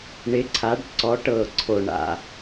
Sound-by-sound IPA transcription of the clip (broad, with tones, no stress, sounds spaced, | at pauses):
ɳ ɪ˨˦ ǀʰ a˨˦ ɖ ǀ ɔ˨˦ ʈ ɤ˨˩ ǀʰ o˨˩ ɳ a̰˨˩